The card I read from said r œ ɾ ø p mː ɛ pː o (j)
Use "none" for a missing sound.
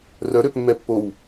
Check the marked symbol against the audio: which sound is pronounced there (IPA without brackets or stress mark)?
w